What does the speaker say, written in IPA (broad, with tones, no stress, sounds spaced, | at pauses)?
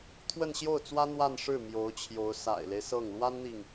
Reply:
t̪ʰ w ə˥˧ n ɕ j o˥˩ ʊ̯ t͡s w ä˥ n̪ w a˥˧ n ʂ ɻ̩˥˩ m j o˧˥ ʊ̯ t͡ɕʰ j o˧˥ ʊ̯ s a̰˨˩ ɪ̯ l e˦ ɪ̯ s ɤ˥˩ ŋ l w a˥ n n̪ i˨ ŋ